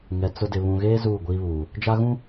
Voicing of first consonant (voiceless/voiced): voiced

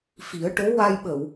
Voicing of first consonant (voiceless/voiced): voiceless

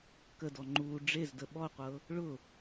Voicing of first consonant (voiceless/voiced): voiceless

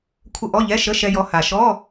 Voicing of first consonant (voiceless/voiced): voiceless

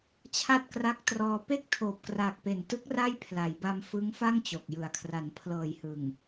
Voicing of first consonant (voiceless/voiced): voiceless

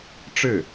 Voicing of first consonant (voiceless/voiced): voiceless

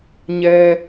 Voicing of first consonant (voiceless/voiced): voiced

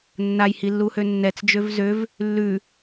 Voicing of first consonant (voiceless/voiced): voiced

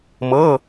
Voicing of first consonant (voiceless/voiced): voiced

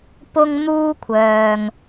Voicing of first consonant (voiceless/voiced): voiceless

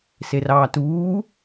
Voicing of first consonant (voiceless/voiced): voiceless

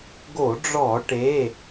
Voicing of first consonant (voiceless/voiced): voiced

